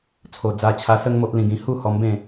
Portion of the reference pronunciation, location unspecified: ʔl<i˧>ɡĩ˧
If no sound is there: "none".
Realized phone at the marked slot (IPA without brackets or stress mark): ĩ˧